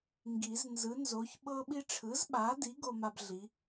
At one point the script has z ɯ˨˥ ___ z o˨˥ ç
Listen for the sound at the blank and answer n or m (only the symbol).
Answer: n